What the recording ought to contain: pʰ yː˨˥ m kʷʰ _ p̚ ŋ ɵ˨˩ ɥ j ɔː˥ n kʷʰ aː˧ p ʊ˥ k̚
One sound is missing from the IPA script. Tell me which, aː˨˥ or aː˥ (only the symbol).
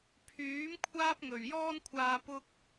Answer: aː˥